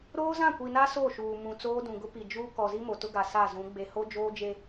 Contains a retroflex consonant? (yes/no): no